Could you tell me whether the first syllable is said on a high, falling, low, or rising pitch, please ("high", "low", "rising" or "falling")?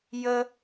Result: high